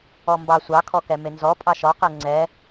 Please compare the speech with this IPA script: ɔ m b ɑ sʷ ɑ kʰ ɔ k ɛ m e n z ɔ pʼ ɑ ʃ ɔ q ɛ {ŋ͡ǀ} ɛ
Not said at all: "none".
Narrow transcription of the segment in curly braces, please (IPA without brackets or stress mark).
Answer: ŋ͡ǀ